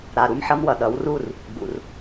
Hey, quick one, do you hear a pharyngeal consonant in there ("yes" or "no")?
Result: yes